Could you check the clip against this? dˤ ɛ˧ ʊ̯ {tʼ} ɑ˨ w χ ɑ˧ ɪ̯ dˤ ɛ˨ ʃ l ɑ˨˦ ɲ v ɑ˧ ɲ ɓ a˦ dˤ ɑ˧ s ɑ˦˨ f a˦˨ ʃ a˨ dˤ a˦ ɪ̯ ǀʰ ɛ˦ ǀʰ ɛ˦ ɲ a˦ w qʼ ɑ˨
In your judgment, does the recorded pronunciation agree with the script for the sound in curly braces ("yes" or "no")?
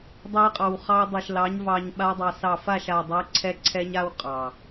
no